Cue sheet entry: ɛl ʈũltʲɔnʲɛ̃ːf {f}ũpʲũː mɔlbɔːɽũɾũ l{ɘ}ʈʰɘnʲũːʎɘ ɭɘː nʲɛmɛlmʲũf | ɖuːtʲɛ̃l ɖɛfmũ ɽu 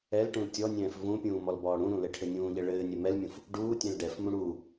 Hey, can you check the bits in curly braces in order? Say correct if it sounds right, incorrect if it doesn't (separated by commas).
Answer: incorrect, correct